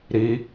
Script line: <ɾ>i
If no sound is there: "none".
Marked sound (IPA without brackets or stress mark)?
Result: ɾ